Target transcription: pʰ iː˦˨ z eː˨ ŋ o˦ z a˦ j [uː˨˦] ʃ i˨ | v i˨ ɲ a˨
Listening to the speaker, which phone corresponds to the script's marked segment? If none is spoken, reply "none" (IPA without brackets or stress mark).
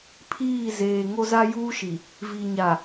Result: uː˦